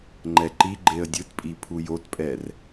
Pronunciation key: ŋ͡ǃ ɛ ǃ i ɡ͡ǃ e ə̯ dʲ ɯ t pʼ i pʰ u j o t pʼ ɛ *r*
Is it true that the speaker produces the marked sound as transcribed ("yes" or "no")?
yes